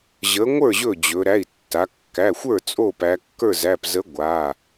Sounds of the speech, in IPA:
ʑ ə˨˥ ŋʷ ə˞˥˩ ʑ ɵ˥˩ d͡ʑ ɵ˩˧ ɾ æ˩˧˩ i̯ tː a˩˧ kː æ˩˧˩ xʷ ə˞˥˩ t͡sʼ o˥˩ p æ˩˧ kː ə˞˥˩ z æ˩˧˩ p z ə˨˥ ɡʷ a˩˧˩

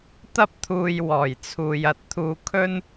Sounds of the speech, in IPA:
t̪ ɐ˥ p̚ t̪ʰ uː˧ j w ɔː˨˩ j t͡sʰ uː˨ j ɐ˧ t̚ t̪ʰ uː˧ kʰ ɵ˥ n

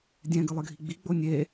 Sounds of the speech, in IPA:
dʲ ɛ̃ ɡ ɨ lˠ ɨ ɡʱ i ɡ͡b i ɡ͡b o nʲ e

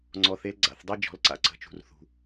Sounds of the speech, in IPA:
ŋ͡ǀ ɔ˨ θ e˦ l ɡ͡ǀ a̰˨ θ dˤ e˦ d͡ʒ ɔ̤˨˦ l ǀ a̰˨ ǀ ə̤˨˦ t͡ʃ ṳ˨ r θ ṳ˨

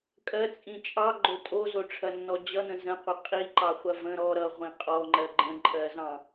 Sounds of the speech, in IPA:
kʼ ɜ t͡sʼ ĩ t͡ʃʼ ɑ ɡ͡ǃ o tʼ o z o ʈ͡ʂʰ ɐ nː ɔ d͡ʑ ʌ n ə̃ z ə̃ qʷ ʌ qʼ i ǃ ɑ χʷ ɐ v ə̃ ɾ ɔ ɾ ʌ ʁʷ ĩ qʼ ɔ ŋ͡ǃ ɜ ɡ͡ǃ ə̃ ǃʼ ɜ z ɑ̃

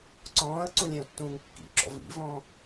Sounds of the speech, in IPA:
ǀ ɔ̃ː ə̯ ǀ ũ lʲ ɛ̃ ʊ̯ tː ũː ŋ kː ḭ ǁ ɔ̰ v ḭ v ɔ̃ː

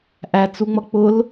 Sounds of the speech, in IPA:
ʔ æ t͡s u ŋ͡m ʌ k͡p ʊ l

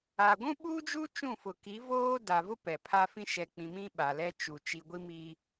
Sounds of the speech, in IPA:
a˨ ɡʷ ũ˦ ɓ uː˦ d͡ʒ u˦ t͡ʃ ũ˦˨ f ʊ˨ k i˨˦ v oː˦ d a˨ v ʊ˦ p ɛ˨ pʰ a˦ f ĩ˦ ʃ ɛ˨ k͡p ĩ˨ m ĩ˦ ɓ a˨ l ɛ˦ t͡ʃ u˨ t͡ʃ i˨ ɡʷ i˦ m i˦

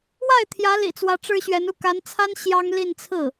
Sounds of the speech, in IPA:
w a˥˩ ɪ̯ t̪ʰ j ä˧˥ l ḭ˨˩ t͡s w ä˧˥ ʈ͡ʂ ɻ̩˥ ɕ ɥ ɛ˧˥ n u˥˩ k a˧˥ n t͡sʰ a˥ n ɕ j ɑ˥ ŋ l i˥˧ n t͡sʰ ɹ̩˥˩

